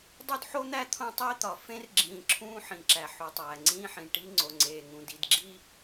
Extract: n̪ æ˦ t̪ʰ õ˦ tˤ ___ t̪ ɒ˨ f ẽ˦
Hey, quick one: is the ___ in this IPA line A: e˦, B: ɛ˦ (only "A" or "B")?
A